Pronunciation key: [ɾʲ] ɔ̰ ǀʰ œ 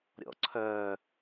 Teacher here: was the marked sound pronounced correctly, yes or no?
yes